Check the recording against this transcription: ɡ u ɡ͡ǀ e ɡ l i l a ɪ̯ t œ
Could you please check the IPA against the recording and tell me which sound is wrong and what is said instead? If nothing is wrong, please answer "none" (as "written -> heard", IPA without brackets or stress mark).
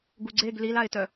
none